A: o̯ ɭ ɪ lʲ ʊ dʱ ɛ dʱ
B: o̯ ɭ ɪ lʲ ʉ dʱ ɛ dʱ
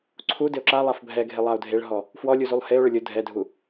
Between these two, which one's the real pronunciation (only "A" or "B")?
A